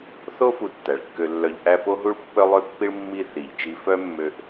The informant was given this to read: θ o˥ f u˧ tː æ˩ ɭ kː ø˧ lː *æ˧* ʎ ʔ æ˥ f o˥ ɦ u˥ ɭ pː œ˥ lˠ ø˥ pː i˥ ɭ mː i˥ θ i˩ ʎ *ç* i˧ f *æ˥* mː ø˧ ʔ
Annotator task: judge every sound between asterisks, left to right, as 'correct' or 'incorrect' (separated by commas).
incorrect, incorrect, incorrect